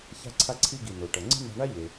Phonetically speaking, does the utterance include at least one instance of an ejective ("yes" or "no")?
no